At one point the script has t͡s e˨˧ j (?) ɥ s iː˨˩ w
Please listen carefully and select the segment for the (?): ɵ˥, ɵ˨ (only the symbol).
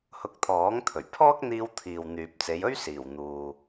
ɵ˥